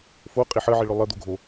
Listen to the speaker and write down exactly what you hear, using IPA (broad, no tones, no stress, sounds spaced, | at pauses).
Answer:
f o qʼ i ħ ə ʕ i ɭ ø lˠ ə d̪ o ɡʱ o